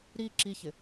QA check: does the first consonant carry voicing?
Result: yes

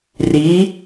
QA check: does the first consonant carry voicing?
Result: yes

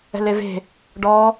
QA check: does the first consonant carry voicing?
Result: yes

